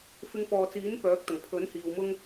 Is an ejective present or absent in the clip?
absent